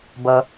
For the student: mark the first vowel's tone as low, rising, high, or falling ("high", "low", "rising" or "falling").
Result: low